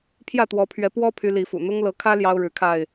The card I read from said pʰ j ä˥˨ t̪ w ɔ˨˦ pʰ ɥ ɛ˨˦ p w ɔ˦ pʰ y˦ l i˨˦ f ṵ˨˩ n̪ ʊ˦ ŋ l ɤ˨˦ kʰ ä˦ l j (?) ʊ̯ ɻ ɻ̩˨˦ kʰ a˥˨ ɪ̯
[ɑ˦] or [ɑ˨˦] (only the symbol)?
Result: ɑ˦